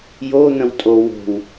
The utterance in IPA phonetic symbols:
j o n̪ ə̃ w tʼ o w o̤ w

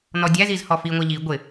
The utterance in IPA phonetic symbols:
n ɔ dʲ æ z i z h ɔ f i ŋʷ æ ʎ i ɡʷ ɪ

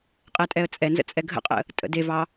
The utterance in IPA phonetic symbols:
qʼ ɛ tʼ ɛ ə̯ t͡sʼ ɛ n z ə̰ t͡sʼ ɛ ɡʱ ə̰ qʼ ə̰ | tʼ ə̰ d e v ɑ

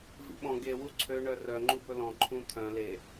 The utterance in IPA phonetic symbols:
v ḭ ɓ ɔ̃ ɡ e w u ǀʰ ø ɳ œ r œ ŋ͡ǃ u b ɵ l ɔ̃ ǃʰ ũ t̪ʰ œ̃ l e

